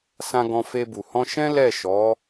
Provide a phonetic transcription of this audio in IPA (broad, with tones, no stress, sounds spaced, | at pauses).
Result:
s ã˧ ɡ ɔ̃˧ f e˧ b u˨ h ɔ̃˧ ʃ ɛ̃˦ l ɛ˦˨ ʃ ɔ˨˦